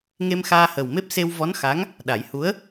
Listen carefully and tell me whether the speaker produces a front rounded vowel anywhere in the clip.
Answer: no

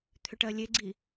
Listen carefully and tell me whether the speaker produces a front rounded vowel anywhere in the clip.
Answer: yes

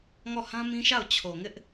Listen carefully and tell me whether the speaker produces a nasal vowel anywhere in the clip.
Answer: yes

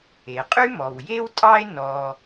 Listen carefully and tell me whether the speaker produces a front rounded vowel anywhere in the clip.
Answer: yes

